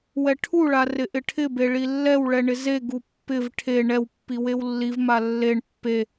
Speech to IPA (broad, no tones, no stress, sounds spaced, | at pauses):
w ɛ ʈʰ u ɭ a r ɪ ʔ ɪ ʈʰ ɪ b e ɭ i lː ɛ w ɭ ɛ ɳ ɪ z e ɡ u pː ɪ v ʈʰ e ɳ ɛ w pː i w e w lː i v m a lː e ɳ pː e